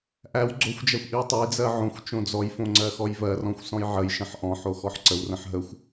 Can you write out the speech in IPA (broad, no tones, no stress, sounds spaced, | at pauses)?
ʔ æ w ɡ͡ǀ o xʷ d͡ʒ æ xʷ ʔ i w tˤ ə j d͡z ɜ ʕ õ xʷ t͡ʃ õ d͡z ɔ j f õ ŋ͡ǀ ɜ x ɔ j v ɜ r ɔ̃ xʷ s ɔ̃ j ʕ ə j ʃ ə̃ ħ ʔ ɔ̃ ħ o x ɔ ħ ǀ ə w r ə̃ ħ ɦ ə xʷ